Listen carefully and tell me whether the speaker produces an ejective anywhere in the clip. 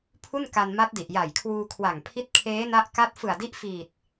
no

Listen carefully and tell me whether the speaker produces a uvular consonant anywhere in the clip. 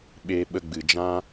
no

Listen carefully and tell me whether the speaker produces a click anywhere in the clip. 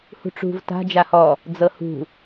no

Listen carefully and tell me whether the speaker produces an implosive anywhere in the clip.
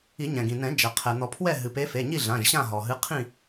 no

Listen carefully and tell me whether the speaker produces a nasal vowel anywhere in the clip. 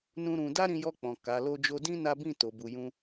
yes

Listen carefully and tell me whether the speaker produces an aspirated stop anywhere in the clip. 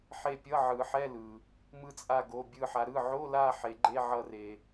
no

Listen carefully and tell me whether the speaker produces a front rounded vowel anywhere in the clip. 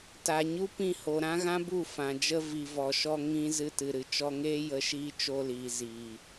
no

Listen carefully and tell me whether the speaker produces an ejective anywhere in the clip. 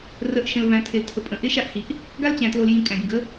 yes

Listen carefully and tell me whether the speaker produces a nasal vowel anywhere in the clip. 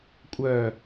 no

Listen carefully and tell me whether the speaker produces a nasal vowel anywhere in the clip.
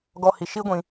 yes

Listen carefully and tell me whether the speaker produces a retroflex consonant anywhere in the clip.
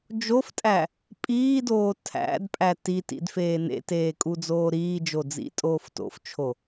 no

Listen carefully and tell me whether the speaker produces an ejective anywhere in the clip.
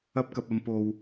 no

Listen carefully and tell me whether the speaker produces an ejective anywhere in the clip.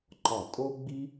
yes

